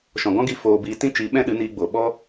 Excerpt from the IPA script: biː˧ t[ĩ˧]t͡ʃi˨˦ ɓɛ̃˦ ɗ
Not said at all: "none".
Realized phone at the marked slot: ĩ˦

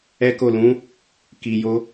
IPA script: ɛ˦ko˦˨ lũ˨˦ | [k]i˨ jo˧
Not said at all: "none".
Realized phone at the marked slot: k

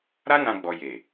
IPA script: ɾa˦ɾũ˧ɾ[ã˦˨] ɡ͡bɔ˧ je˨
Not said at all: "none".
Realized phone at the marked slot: ã˧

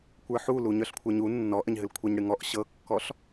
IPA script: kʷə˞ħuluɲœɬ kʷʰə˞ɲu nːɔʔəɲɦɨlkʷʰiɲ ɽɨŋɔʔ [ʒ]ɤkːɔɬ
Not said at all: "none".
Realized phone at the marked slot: ɕ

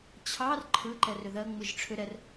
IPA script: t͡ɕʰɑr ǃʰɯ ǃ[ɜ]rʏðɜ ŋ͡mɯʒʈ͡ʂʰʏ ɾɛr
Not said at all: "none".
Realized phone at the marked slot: ɛ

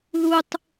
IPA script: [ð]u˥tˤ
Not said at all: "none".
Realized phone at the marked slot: ð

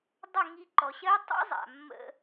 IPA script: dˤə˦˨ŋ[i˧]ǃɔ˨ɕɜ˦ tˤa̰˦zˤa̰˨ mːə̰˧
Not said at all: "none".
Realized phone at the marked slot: i˧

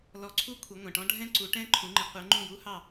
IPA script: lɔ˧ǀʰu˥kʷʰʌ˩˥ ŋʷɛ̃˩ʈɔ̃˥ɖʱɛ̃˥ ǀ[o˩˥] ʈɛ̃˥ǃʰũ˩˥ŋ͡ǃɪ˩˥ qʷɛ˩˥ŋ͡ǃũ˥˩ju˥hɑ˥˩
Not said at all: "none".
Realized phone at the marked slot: u˩˥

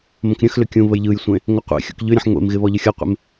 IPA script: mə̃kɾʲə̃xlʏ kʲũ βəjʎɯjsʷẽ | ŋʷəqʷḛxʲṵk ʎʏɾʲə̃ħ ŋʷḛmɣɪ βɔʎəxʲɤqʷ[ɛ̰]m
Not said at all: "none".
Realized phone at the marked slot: ḛ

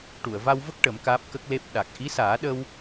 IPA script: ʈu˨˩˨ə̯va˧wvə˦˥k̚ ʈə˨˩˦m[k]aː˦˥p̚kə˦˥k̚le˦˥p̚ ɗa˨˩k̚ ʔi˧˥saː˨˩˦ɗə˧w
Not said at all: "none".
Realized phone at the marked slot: k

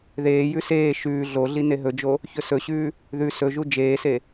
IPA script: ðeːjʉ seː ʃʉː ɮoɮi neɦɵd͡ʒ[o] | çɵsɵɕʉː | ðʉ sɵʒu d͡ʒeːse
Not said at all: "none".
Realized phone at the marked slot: o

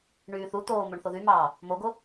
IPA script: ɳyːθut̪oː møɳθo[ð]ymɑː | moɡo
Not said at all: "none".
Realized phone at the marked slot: ð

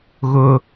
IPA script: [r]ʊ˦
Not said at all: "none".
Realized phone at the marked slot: ɣ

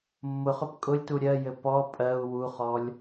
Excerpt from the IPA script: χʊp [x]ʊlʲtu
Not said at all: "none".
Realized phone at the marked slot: kʼ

